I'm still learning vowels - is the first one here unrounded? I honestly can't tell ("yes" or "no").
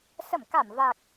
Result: yes